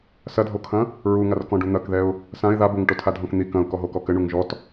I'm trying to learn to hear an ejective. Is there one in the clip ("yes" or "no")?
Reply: no